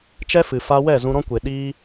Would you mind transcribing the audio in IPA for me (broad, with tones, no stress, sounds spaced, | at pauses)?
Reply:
t͡ʃ ɛ˦ f ɨ˨ f a˧ w ɛ˦˨ z ũ˧ ɾ ɔ̃˦ kʷ e˨ ɗ iː˧